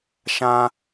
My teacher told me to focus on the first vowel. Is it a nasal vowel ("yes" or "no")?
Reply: yes